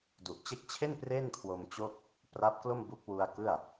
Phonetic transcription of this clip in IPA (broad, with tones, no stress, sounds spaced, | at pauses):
d u˨˩ ʔ t͡ɕ e˦˥ k̚ t͡ɕʰ e˥˩ n p r e˥˩ n kʰ w o˧ m t͡ɕ o˥˩ k̚ | p r a˦˥ p̚ k l o˥˩ m b u˦˥ k̚ w u˧ a̯ k ɯ˥˩ a̯